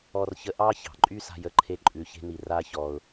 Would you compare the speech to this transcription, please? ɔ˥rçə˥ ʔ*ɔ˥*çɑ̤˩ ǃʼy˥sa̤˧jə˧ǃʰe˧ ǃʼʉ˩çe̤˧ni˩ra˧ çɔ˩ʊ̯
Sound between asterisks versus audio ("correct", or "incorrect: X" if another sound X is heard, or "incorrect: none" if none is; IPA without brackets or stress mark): incorrect: ɑ˥